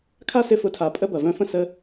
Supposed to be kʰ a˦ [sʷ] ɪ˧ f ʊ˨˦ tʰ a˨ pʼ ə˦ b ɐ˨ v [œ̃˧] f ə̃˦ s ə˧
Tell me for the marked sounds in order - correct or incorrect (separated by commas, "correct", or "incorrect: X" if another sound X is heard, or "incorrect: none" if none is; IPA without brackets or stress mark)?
incorrect: s, correct